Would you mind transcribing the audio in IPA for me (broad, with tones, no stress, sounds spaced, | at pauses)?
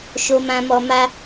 ʃ o˧ m ã˧ m ɔ˧ m a˦